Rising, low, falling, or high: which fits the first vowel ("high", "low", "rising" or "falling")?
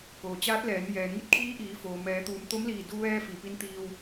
low